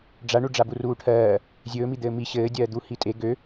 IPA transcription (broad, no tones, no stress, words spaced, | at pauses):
ɖ͡ʐaɳu ɖ͡ʐaburuːʈʰɜː | zʲɵːmid̪ɘː mi ɕɘːdʲɜːd̪u hitʼe ɡø